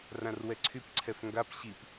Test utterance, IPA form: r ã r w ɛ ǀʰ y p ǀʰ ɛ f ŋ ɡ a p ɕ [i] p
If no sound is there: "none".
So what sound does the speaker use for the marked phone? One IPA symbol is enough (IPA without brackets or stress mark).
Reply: i